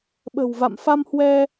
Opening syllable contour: low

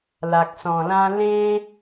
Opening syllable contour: low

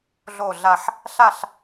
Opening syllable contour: falling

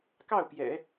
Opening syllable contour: falling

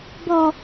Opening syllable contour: low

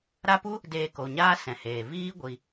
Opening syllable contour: high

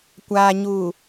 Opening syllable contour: low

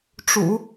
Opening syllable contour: low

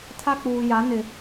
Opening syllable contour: high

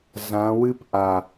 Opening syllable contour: rising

